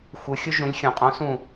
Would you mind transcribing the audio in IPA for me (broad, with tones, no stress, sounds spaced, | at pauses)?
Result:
xʷ ɯ˩˧ xʲ u˦ ʒ ũ˩˧ lʲ xʲ õ˩ qʼ õ˨˥ s ũ˧˩